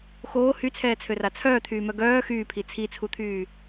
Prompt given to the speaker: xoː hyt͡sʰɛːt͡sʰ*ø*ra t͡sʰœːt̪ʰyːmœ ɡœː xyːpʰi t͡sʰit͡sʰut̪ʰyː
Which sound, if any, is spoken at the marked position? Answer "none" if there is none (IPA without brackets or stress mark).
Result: ø